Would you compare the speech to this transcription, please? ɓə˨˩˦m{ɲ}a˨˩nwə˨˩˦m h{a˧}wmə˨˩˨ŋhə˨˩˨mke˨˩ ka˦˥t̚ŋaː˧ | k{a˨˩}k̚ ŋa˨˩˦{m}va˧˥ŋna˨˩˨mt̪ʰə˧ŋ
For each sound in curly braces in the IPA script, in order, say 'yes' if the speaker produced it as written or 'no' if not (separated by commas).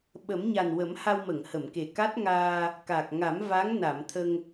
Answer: yes, yes, yes, yes